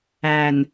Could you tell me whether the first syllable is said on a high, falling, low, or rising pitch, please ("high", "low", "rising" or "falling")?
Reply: low